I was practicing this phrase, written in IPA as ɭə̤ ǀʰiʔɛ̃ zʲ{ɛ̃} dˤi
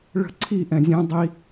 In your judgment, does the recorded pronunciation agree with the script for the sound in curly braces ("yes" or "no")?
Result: yes